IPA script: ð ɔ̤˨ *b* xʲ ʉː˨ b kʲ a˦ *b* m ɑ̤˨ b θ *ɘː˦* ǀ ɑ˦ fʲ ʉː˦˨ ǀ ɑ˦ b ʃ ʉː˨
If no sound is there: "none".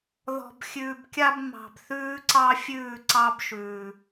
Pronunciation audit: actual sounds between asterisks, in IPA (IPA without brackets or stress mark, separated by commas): b, b, ʉː˦